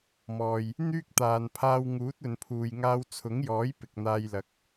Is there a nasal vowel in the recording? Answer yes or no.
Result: no